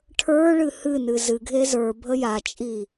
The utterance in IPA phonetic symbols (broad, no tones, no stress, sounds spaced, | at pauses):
ʈʰ ə˞ ɭ ɨ h ɨ n ɨ z ɨ ɡʱ e z ə˞ bʱ ə j a t͡ʃʼ i